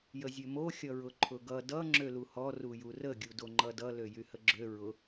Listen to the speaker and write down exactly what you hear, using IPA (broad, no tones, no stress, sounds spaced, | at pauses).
j ə zʲ ø m o xʲ ʌ ɹ ʊ ǃʰ ʊ ɡ ʌ d ʌ ŋ͡ǁ ø l u h ɔ r u j u r ə ɡʲ u d o ŋ͡ǃ ʌ d ʌ l ø j y h ə ɡ͡ǁ ø ɹ ʊ